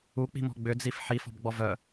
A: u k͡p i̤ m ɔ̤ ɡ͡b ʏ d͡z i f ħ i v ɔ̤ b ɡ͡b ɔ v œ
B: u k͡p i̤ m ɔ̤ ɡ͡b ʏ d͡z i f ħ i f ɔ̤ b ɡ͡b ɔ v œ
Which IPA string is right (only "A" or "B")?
B